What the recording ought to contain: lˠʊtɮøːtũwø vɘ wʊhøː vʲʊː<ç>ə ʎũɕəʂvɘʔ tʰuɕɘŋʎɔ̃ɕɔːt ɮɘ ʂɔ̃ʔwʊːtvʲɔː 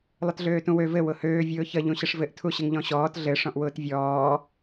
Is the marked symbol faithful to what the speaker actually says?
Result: yes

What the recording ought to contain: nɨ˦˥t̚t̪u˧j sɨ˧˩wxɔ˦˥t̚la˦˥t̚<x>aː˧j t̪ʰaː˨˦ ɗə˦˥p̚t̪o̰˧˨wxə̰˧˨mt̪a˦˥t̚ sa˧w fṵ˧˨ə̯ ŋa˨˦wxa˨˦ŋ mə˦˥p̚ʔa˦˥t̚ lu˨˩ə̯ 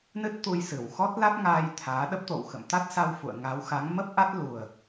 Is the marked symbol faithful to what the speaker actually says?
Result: no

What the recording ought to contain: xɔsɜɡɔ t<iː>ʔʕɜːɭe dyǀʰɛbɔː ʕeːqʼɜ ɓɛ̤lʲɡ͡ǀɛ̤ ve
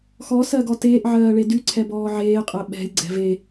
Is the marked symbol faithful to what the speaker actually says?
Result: no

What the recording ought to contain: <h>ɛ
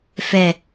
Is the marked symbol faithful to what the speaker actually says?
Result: no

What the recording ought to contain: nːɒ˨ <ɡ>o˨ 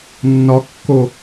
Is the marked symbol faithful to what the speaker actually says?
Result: no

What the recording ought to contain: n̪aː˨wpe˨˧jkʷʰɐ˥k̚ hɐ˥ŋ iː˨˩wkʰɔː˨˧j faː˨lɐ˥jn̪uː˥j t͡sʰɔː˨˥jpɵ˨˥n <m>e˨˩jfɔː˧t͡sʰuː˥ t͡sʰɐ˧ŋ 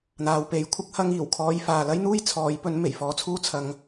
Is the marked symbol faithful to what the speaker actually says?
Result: yes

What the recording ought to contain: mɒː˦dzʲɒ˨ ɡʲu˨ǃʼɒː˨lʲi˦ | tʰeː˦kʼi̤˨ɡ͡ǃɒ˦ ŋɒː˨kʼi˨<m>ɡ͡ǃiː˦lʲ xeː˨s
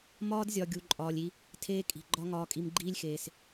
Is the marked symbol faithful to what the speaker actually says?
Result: yes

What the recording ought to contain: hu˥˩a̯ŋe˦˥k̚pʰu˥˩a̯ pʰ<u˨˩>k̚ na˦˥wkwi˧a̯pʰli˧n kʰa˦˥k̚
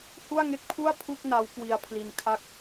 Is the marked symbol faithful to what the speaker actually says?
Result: no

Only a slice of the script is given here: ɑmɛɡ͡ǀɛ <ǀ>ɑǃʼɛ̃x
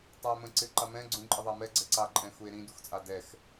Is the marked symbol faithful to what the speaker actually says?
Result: yes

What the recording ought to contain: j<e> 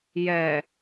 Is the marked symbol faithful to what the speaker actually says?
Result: no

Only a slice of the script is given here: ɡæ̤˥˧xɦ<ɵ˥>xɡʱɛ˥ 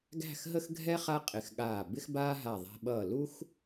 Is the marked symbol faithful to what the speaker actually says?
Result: no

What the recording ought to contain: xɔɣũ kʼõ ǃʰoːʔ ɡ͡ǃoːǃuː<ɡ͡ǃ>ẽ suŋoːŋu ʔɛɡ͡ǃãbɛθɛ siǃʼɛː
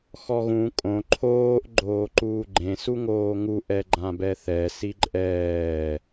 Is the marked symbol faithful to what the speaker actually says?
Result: yes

